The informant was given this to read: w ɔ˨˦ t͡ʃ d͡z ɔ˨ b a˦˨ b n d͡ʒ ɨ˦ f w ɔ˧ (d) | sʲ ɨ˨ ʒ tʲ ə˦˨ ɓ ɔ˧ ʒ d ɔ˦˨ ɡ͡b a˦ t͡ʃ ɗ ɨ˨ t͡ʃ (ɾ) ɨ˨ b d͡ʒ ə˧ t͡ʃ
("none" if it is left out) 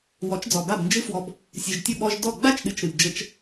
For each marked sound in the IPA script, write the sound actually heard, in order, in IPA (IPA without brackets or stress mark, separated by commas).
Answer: b, ɾ